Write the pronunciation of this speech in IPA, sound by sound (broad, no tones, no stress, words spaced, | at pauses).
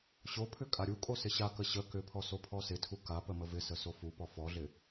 ɕopʰʏ kʼaɾʲukʼo sɪɕakə ɕə kʏpʰɔ sopʰɔsɪtʰu kapə məvɪsə sofupɔ fɔɮɪ